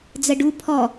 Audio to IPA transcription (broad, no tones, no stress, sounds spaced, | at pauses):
d͡z ə ɖ u pʰ ɔ